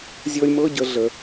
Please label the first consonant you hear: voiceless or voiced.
voiced